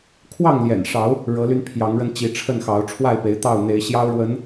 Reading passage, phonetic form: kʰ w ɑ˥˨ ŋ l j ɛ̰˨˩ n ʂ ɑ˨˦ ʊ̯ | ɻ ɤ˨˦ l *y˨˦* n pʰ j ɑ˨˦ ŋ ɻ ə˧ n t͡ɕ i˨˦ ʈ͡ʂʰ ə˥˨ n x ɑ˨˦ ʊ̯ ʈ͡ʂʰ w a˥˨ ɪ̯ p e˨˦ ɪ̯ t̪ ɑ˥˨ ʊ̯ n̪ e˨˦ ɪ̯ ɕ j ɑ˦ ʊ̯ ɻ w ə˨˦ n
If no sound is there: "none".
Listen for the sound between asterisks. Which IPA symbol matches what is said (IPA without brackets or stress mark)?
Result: y˧